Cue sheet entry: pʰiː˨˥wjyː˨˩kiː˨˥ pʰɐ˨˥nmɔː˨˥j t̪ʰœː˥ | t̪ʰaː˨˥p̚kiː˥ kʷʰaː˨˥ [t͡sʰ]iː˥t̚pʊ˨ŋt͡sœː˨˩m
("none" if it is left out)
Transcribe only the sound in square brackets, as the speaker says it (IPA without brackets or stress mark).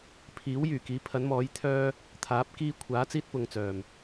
t͡s